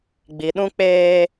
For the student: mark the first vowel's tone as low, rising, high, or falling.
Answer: low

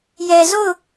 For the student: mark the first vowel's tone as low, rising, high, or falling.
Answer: low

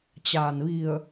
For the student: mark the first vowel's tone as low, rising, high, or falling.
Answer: low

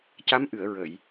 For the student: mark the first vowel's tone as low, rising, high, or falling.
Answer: rising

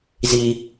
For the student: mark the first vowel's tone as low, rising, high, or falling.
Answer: low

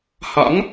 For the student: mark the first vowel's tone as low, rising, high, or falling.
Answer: rising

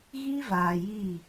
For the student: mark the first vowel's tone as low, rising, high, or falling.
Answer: high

